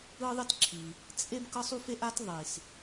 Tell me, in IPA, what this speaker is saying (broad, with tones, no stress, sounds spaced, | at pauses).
ɯ˥ ðˤ i˥ t ǁʰ i˩ | t͡sʼ e˥ b k ɤ˥ sˤ u˥ f e˥ ʔ a˥ t ðˤ i˩ s